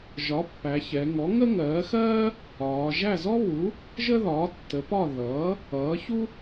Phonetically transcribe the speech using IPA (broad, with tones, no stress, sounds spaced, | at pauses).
ʒ ɒ˩˥ pː æ˩˧ ç ɛ˩˧ ŋ ɔ˩˥ ŋ ə˥ ŋ ɜː˩˥ x ɜː˥ | ɒː˩˧ ʒ æ˥˨ z ɔ˥ β u˩˥ | ʒ ə˥ ð ɒː˩˥ tː ə˩˥ p ɒ˥˨ ð ʌː˩˥ | ʌː˩˥ ç u˥